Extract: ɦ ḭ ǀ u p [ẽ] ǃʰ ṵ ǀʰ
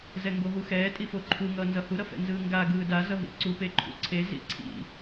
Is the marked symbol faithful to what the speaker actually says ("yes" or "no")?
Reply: no